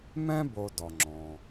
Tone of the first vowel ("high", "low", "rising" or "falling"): high